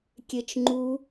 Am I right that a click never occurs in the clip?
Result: no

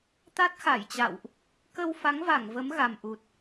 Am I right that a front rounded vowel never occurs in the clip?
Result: yes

